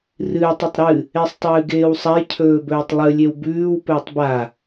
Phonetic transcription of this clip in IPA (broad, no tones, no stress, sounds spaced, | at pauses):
r ɨː tˤ i tˤ ɾ ɨ | e sˤ tˤ ɨː ɡ eː w sˤ a j cʰ ɵː b ɵː tˤ lˠ ɨ lʲ e w b ʉː w p ɵː tˤ b a